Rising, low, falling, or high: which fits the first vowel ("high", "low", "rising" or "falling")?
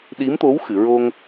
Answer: rising